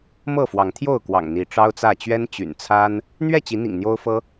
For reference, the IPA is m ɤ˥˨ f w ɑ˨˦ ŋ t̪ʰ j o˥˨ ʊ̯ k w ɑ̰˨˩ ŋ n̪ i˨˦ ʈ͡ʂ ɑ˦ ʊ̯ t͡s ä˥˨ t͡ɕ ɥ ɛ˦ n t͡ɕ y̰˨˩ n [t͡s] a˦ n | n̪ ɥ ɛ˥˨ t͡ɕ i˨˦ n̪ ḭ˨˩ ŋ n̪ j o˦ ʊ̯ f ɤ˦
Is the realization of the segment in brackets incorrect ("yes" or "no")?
yes